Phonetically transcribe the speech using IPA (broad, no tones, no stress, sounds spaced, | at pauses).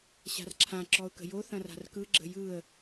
ɕ a̤ r ǁʰ ã ǁ ɔ ʊ̯ k ə̤ j o θ ɐ̃ r a̤ r k ɯ ɡ͡ǁ ə̤ j ɯ ə̯